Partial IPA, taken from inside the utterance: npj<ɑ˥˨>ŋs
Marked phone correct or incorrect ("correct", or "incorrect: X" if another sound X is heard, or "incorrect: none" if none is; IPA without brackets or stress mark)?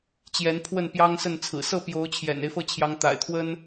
incorrect: ɑ˦